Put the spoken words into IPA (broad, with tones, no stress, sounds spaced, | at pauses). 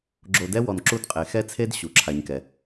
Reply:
ɡ͡ǁ o˨ d ɛ˦ w ɔ˨ n ǁ u˦ d qʼ e˨ x ɛ˦ t͡sʰ e˦ d ɕ u˨ ǁʰ a˦ ɲ k ɛ˦